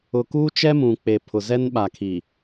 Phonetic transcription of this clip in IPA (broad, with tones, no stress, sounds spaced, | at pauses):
ʊ˨ k uː˦ t͡ʃ ɛ˦ m ũ˨ k͡p e˨ pʰ ʊ˨ z ɛ˦ n ɓ a˨ kʰ i˨